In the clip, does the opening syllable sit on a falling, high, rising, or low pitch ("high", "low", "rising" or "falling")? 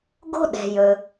high